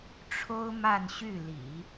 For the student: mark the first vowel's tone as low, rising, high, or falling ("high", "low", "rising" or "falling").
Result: high